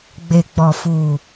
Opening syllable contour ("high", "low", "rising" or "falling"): low